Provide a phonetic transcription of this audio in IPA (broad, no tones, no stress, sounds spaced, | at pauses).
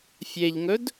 fʲ e ʎ ŋ ɵ d